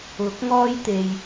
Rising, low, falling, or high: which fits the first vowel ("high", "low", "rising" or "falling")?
rising